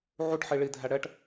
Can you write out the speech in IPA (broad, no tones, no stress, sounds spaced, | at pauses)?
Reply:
ʕ u ʈ ħ i ɭ i dʱ æ ɽ ɛ ʈ